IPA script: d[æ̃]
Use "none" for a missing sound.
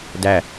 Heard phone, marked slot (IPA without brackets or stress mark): æ